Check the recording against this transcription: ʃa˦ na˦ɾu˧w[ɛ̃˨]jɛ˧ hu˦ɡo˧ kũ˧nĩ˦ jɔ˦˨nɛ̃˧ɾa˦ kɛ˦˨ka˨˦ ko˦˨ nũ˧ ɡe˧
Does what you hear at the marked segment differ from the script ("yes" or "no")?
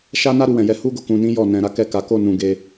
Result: no